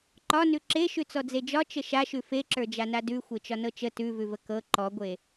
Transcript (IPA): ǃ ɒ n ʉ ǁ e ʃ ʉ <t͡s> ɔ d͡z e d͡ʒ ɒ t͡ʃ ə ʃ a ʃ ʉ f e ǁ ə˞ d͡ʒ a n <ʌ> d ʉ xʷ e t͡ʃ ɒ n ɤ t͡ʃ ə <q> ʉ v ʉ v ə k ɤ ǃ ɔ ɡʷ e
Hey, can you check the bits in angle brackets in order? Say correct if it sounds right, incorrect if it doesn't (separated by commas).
correct, incorrect, incorrect